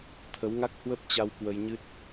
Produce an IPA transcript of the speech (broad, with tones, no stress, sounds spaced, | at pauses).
t̪ʰ ə˨˦ w ŋ a˦˥ k̚ h w ə˦˥ p̚ t͡ɕ a˧ w k w ə˧ j ɲ ɨ˦˥ t̚